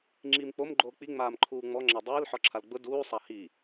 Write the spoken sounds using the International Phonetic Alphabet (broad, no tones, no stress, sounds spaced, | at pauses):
ŋ͡ǁ iː m k͡p o m ɡ͡ǃ oː k͡p i ŋ͡m aː m ǃʰ uː ŋ͡m ɔ ŋ͡ǁ a dˤ iː l ħ ɔ ǁʰ a l ɡ͡b ʊ d uː sˤ a h i